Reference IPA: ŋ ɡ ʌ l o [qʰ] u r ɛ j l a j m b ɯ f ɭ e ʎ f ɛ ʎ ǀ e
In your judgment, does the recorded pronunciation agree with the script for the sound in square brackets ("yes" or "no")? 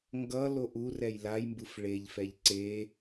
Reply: no